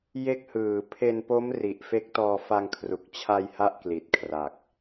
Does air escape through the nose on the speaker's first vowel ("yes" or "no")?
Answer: no